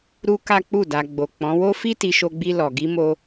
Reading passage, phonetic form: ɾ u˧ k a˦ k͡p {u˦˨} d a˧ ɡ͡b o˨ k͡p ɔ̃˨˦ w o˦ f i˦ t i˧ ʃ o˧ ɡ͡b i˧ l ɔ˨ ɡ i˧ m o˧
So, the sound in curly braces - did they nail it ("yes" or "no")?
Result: yes